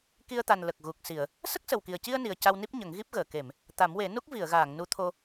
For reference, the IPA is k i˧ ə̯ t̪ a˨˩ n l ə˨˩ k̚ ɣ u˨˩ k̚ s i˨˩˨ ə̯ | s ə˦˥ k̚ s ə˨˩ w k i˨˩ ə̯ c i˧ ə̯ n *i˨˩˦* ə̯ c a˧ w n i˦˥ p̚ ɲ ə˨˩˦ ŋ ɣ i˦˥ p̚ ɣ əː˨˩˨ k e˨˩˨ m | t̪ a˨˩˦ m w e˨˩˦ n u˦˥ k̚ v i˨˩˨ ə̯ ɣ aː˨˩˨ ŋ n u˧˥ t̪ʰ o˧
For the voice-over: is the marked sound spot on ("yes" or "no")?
no